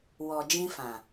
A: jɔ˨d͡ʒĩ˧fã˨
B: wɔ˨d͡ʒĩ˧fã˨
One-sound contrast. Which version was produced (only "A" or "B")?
B